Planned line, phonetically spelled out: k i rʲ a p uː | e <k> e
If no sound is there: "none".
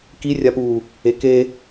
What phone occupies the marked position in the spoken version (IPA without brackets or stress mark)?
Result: k